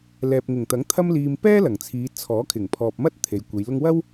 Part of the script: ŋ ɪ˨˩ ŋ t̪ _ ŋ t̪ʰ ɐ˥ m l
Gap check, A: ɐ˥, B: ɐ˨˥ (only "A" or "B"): B